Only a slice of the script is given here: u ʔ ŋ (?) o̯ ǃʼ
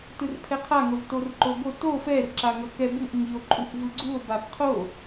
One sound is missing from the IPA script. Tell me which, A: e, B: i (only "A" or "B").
B